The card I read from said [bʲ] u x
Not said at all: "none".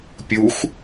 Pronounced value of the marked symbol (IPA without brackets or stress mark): pʲ